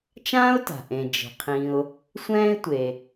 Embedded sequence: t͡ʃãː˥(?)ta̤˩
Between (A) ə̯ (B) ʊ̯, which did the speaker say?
B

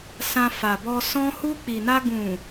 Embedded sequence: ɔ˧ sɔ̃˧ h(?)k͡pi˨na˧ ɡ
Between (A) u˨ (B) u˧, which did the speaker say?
B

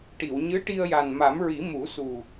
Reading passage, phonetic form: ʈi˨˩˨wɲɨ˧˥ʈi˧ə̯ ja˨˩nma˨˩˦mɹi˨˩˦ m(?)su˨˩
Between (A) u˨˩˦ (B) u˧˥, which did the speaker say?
A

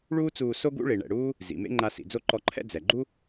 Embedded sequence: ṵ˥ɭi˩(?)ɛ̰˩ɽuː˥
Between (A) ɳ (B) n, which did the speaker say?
A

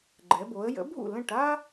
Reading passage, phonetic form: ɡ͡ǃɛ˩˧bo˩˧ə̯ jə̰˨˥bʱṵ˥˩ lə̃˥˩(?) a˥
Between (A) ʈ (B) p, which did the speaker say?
A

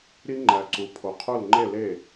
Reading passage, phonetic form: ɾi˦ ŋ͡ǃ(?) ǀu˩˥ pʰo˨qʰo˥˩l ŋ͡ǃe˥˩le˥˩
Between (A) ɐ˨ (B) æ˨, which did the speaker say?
B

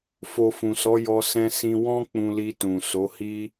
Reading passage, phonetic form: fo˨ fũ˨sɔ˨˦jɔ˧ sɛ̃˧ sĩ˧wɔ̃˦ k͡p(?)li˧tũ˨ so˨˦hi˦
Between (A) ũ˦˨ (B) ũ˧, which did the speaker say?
B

